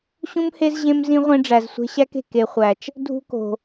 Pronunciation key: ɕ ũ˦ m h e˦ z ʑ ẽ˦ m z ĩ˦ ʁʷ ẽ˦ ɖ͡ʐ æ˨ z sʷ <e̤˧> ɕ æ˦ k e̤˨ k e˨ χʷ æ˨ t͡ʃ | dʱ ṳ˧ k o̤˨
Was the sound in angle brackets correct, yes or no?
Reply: yes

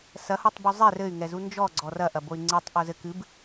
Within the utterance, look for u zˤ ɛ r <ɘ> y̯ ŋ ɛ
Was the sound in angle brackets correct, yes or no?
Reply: yes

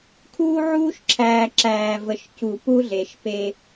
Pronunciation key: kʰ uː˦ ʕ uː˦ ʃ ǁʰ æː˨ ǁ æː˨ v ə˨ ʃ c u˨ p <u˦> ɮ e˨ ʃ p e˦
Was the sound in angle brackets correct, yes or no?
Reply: yes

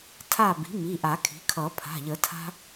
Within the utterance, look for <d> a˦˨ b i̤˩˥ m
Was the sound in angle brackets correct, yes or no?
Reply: no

